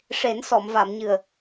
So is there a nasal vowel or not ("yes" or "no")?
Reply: no